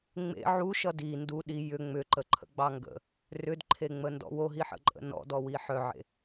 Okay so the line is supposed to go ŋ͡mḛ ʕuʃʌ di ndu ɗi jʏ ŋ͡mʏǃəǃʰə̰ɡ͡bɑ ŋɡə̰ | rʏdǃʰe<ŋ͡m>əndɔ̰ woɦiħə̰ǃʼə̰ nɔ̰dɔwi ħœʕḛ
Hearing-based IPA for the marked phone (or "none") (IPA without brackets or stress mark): ŋ͡m